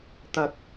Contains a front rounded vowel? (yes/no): no